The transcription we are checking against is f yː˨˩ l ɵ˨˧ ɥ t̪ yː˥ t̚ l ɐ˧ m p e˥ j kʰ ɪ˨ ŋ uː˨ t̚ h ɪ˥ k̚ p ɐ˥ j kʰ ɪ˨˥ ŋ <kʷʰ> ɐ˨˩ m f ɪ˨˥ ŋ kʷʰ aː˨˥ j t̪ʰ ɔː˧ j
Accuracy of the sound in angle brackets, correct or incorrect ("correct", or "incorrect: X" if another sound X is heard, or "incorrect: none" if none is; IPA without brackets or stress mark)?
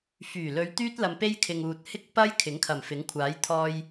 incorrect: kʰ